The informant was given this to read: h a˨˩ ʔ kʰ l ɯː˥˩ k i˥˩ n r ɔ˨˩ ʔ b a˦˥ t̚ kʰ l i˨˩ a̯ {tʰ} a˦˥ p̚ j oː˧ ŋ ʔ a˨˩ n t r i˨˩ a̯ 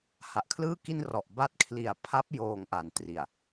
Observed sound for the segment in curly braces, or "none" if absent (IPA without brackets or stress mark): pʰ